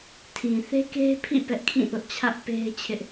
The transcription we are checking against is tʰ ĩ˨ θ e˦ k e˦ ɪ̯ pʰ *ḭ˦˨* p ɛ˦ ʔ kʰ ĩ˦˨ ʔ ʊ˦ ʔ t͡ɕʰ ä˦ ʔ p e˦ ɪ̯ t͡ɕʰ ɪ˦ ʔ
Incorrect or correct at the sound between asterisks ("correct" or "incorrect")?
correct